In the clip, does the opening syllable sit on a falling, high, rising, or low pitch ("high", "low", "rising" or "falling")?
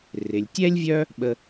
low